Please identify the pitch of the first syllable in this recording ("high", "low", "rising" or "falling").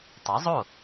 rising